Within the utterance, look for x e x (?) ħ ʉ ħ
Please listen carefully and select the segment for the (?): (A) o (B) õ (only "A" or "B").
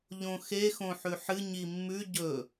B